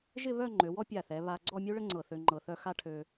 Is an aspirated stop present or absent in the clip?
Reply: present